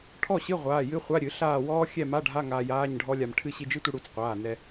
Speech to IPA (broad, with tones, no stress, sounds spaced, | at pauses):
ʈʰ ɔ˥˨ ɕ ɨ˧˥˧ ʁʷ aː˩˧˩ j ɨ˧˥˧ χʷ a˧˥˧ ɾʲ ɨ˨˩˦ ɬ aː˥˨ w ɔː˦˥ xʲ ɛ˥˨ m a˧˥˧ ɖʱ a˧˥˧ ŋ aː˧ j aː˧˥˧ ɲ ɖʱ ɔ˦˥ lʲ a˧ m ʈʰ ɨ˥˨ ɕ i˧ d͡ʒ ɨ˦˥ tʷ ɨ˧ ɽ u˨˩˦ t͡s qʷ aː˩˧˩ n ɛ˧